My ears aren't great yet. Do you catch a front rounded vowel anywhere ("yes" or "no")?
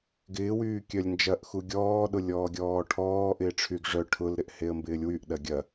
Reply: yes